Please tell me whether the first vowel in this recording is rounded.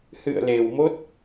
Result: no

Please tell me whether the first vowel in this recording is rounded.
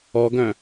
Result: yes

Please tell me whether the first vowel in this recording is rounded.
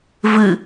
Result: no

